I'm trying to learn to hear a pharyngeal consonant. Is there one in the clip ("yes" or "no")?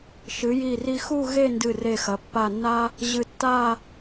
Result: no